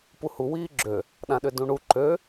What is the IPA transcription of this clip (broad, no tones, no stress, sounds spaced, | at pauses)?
p u h u w iː ɡ͡ǁ ø | ɗ ã ɗ ʏ d ũ ɳ u ǃ ø